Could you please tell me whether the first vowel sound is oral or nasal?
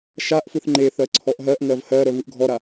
oral